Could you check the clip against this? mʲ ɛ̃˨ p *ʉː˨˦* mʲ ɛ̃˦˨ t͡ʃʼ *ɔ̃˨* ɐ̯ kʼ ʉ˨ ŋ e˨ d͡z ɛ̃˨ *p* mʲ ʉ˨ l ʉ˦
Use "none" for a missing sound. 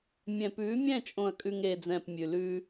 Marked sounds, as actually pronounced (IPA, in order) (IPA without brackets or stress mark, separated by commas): ʉː˨˦, õ˨, p